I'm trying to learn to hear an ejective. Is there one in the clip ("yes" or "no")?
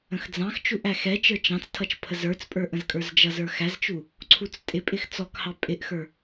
yes